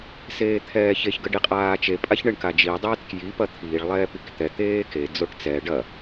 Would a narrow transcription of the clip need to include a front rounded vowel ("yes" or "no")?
no